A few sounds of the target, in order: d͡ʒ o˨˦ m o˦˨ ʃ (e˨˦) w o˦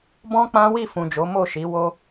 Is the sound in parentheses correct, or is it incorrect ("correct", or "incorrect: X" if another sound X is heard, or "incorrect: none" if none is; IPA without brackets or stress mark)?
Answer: incorrect: i˨˦